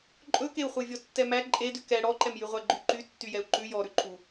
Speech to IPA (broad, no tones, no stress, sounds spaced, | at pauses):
ǃʼ ɵ k e u̯ χʷ e vʲ ɔ tː ɛ m æ ǃʼ e d ʉ k ɛ ɽ ɔ ǃ ɛ m j y ʁʷ æ ɡ͡ǃ y ǃ y tː y j ɛ u̯ ǃ ʉ j ɔ ɾ ʉ ǃʰ u